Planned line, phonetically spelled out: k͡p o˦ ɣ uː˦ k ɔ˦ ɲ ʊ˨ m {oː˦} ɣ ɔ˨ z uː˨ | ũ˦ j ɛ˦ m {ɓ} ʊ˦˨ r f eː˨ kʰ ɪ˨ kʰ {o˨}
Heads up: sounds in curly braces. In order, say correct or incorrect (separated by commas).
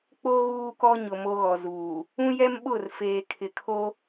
incorrect, correct, incorrect